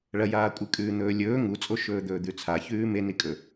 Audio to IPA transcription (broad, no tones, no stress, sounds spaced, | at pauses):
ɭ ɐ j aː kʷʼ ɨ kʼ ʉː n̪ ɵː lʲ ɵː ŋ u t͡sʼ o ʃ ɵː d̪ ɵː d̪ ʉ t͡sʰ a ç ʉː m e n i kʼ ɵ